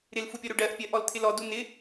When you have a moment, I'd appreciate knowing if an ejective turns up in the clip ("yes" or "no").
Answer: no